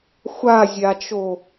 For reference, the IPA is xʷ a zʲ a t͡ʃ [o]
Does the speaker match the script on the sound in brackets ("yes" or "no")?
yes